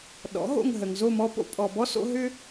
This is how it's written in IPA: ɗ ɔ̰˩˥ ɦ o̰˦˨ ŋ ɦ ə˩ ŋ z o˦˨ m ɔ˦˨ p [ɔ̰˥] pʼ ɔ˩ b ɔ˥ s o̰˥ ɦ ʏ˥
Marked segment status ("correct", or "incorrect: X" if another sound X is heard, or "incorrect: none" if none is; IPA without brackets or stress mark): incorrect: o̰˥